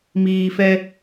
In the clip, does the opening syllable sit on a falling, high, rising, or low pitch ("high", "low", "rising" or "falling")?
low